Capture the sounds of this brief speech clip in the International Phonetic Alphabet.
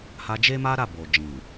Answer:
h a˧ d͡ʒ e˦ m a˦ ɾ a˦˨ b o˨ d͡ʒ ĩ˨

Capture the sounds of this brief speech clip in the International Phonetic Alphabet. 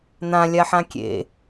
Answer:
n̪ ã lʲ a ħ ã kʲ ḛ

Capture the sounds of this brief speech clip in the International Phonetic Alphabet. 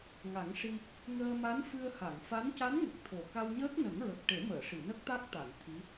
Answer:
ŋ a˨˩˦ ŋ ʂ i˧ | ŋ əː˧ m a˧˥ n f ɨ˧ ə̯ h a˨˩˨ ŋ f a˧˥ n c a˧˥ n ŋ ə˨˩ k̚ t̪ʰ o˨˩ k a˧ w ɲ əː˦˥ k̚ n ə˨˩˦ ŋ ɹ ə˨˩ k̚ ʈ e˨˩˦ m əː˨˩˨ ʂ i˨˩˨ n ə˦˥ k̚ t̪ a˦˥ k̚ t̪ a˨˩˨ n t̪ʰ i˧˥

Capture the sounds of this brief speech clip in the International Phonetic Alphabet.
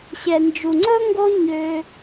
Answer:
ɕ ɛ˨ n d͡ʒ u˨ ŋ͡ǀ ɵ˦ ŋ ɡ o˦ ɲ ø˧

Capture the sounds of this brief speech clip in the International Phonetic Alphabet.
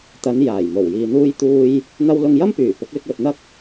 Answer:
t̪ ɐ˨˧ n j aː˨˩ j m o˨˩ w j iː˨ n̪ uː˧ j t̪ uː˧ j | n̪ ɐ˥ w l ʊ˧ ŋ j ɐ˥ m p yː˨˩ p ʊ˨˥ k̚ l ɪ˧ k̚ w ɵ˨ t̚ n̪ ɐ˥ k̚

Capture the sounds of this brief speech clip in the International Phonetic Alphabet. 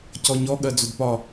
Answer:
c ɔ ɲ ɔ ɠ ɜ d͡z ʊ d p ɒ

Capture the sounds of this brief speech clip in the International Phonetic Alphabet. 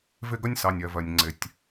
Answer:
v ɪ˦ ɡ ʌ˦ nʲ s ɑ˨ nʲ ɜ˨ v ɜ˨ nʲ ŋ͡ǀ ɪ˨ tʲ

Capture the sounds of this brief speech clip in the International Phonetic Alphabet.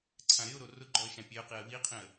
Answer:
ǀʰ ã ɾ ɪ ʊ̯ ɾ o r ʊ ɡ͡ǃ ɔ ə̯ ʃ ã pʲ e ʊ̯ q i ə̯ w i qʰ ĩ ə̯

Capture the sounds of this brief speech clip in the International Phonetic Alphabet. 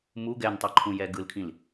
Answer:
m u ɡ ɛ n tˤ ʌ ǃʰ ũ j ɛ ɡ ɯ l kʰ ĩ l

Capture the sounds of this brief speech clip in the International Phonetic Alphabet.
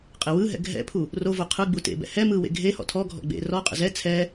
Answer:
qʼ e w ɯ ɦ ɛ̰ ɡʱ ɛ̰ pʰ u | r o v o qʰ ɯ ɡ͡b u t ḛ b ɛ̰ h ɛ m ɯ w ḛ ɡʱ e h ɔ̰ tʰ ɔ ɡʱ ɔ̰ ɡ͡b ḛ r ɔ qʼ ə̰ z ɛ t͡sʰ ɛ

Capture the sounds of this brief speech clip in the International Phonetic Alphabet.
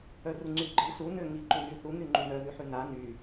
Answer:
œ r u ŋ͡ǀ y ɡ͡ǃ i s u n ø ŋ i ǃ y n y θ u n̪ y ŋ͡ǃ y n œ ð y ħ y n a n y

